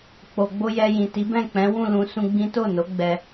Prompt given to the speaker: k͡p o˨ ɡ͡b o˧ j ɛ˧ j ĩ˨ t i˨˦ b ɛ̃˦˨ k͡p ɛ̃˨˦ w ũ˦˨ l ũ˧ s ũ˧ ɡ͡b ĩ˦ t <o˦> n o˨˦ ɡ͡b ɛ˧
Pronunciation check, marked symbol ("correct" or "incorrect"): incorrect